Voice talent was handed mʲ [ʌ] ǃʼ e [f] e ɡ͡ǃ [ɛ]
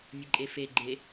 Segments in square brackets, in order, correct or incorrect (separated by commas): incorrect, correct, incorrect